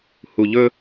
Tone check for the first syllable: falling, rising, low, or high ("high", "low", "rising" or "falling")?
low